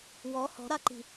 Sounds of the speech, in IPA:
w ɔ h ɔ̤ ɾ a ǃ i̤

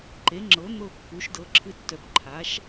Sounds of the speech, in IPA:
ǃ e˩˥ ŋ͡ǁ ɤ˩˥ n̪ ɤ˥˩ kː u˩˥ ʃ d ɤ˩˥ ǁʰ ɨ˧ tː œ˩˥ p ǃʰ a˩˥ ʃ

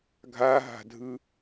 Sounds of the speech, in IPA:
ɡʱ a ɦ a̤ dʱ ɯ

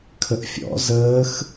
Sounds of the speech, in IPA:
kʰ ə ʔ fʲ ɔ̰ z əː x

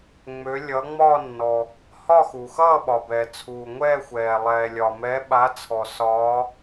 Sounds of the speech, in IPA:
ŋ͡m ø˨˦ lʲ ʌː˨˦ ŋ͡m ɒː˥˧ nː ɔ˩ | h ɒ˥˧ x u˩ x ʌː˥˧ ɓ ɒ˩ b ɛ˩ t͡sʰ uː˩ ŋʷ ɛː˥˧ xʷ ɛː˩ lˠ ɛː˩ lʲ ɒ˩ m ɛ˨˦ ɓ a˨˦ t͡sʰ ɔ˩ s ɒː˨˦

